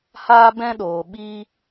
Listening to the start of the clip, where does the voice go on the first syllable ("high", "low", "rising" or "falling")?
high